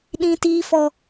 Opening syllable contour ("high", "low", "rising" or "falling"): high